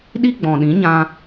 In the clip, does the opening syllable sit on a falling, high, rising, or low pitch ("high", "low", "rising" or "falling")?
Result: high